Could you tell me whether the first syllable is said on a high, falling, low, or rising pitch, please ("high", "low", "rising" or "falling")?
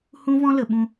high